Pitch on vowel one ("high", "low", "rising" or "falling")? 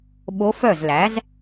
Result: rising